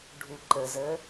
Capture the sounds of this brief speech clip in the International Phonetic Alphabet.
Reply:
ɖʱ u ǃ ə z ə

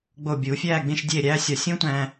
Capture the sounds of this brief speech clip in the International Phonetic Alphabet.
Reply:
ɡ͡b o˧˩ bʲ u˩˧ fʲ æː˥˧ ɡ͡b ĩ˥˧ ʃ dʲ eː˥˧ ɾʲ æː˥ sʲ ɒ˧˩ sʲ ũ˥ tʷ æ̃˧

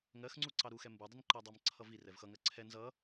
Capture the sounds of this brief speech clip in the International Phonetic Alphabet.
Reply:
ŋ ɜ x ŋ͡ǀ u ǀ ɑ ɾ u x ɛ m b u dˤ ə n ǃ ɜ dˤ ɑ m ǀʰ ʌ v i r ɛ v x ʌ ŋ ɜ ǀʰ ɛ n z ʌ

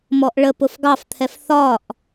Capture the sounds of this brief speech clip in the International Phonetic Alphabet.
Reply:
m ɔ ʔ ɭ ə p ʊ f ɡ ɑ f t̪ʰ ɛ f θ ɒ ʔ

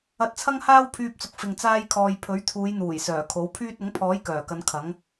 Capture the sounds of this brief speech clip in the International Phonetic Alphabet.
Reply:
ɐ˧ t̚ t͡sʰ ɐ˥ ŋ h aː˥ w pʰ yː˧ p̚ t͡s ʊ˨ k̚ f ɪ˨ ŋ t͡s aː˧ j kʰ ɔː˨ j pʰ ɵ˨˥ ɥ t̪ʰ uː˨˧ j n̪ uː˨˩ j s œː˨˩ kʰ o˨˥ w pʰ yː˥ t̚ ʊ˨˥ ŋ pʰ ɔː˨˥ j k œː˨˩ k ɐ˨˧ n kʰ ɐ˨˥ ŋ

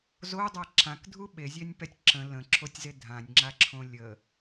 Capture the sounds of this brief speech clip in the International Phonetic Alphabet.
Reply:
z o dˤ a ǁ ã k dʱ u ɓ e zʲ ɛ nʲ p ɛ tʲ ǁ ə̃ l ə̃ ǁʰ o tʲ z e dʱ ã nʲ ŋ͡ǁ a ǁʰ õ lʲ ə

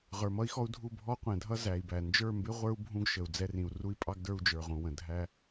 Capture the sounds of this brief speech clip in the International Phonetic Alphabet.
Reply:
ʁ ə˞˨ m ʌ˦ i̯ x ɔ˦ u̯ dʱ u˦˨ bʱ ɔ˦ qʷ ɛ̃˨ dʱ ʌ˦ z æ˨ i̯ b æ˨ n d͡ʒ ə˞˦˨ m b ɪ˦ ʁʷ ə˞˦ u̯ bʱ ũ˦ ɡ ʃ ə˨ u̯ d͡z ɛ˦ r ĩ˨ u̯ r u˦ i̯ pʼ ɑ˦ ɡ d ə˞˦ u̯ d͡ʒ ə˞˨ ʁ ũ˨ w ə̃˨ dʱ æ˦

